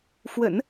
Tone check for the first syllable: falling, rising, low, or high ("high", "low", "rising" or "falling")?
low